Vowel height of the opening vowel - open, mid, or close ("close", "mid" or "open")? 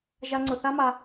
open